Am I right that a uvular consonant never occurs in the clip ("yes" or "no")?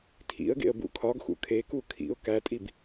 yes